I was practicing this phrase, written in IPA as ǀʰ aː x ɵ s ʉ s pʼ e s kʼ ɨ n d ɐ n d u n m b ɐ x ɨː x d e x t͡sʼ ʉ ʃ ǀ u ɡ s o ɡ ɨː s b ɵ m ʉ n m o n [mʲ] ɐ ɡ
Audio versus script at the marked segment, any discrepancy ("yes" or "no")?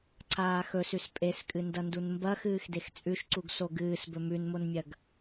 no